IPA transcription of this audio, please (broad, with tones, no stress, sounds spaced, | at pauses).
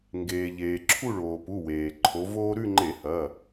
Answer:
ŋ ɡ eː˩ ʎ eː˩ ǁʰ u˥˧ ɭ oː˩ p u˩˧˩ w eː˩ ǃʰ o˨˦ v oː˥ ɾ ʉ˥˧ ŋ͡ǃ e˧˩˧ h ɐ˩˧˩